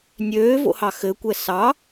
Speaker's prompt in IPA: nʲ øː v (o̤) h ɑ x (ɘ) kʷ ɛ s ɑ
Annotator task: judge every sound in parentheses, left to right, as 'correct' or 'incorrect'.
incorrect: o̰, correct

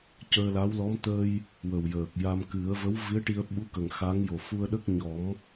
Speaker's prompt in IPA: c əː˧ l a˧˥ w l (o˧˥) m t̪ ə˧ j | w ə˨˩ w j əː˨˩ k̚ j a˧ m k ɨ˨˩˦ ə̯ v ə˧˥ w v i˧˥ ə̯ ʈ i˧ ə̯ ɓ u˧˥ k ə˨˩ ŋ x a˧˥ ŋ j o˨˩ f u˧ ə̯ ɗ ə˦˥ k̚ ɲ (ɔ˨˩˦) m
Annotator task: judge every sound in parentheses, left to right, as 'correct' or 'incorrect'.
incorrect: ɔ˧˥, correct

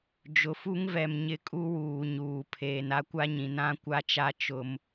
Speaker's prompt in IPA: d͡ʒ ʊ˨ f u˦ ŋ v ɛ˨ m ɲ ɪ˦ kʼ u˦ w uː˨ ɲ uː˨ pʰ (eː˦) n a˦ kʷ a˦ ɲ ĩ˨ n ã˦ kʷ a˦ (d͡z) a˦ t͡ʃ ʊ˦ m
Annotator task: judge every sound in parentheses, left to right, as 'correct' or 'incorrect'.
incorrect: eː˨, incorrect: t͡ʃ

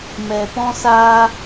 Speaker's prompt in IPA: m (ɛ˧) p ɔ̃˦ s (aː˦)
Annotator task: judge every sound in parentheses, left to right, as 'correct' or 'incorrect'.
correct, correct

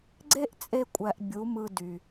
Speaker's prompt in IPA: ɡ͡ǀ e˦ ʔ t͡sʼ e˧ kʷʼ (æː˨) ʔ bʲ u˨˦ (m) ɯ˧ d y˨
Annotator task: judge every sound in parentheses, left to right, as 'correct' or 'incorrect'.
incorrect: æ˨, correct

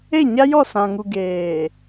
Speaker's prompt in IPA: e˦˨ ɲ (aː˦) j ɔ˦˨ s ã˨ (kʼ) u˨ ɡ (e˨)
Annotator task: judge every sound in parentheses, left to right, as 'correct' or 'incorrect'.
incorrect: a˦, incorrect: ŋ, incorrect: eː˨

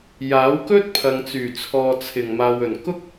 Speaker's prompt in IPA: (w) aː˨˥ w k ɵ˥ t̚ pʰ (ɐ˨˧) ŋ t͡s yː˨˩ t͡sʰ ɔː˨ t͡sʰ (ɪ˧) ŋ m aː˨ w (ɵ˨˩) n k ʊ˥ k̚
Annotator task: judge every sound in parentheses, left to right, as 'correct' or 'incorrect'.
incorrect: j, incorrect: ɐ˨, incorrect: ɪ˨˩, correct

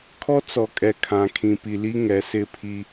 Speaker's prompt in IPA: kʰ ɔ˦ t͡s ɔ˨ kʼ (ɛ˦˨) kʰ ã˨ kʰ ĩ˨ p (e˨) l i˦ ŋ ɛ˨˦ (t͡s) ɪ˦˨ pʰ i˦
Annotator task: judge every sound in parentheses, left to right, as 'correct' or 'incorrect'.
incorrect: ɛ˨, incorrect: i˨, incorrect: s

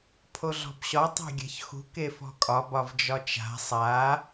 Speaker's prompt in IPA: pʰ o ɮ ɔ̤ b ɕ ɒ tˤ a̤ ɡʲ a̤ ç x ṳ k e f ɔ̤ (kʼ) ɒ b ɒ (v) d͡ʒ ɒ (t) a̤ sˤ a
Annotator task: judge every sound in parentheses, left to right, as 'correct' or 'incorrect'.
correct, correct, incorrect: t͡ʃ

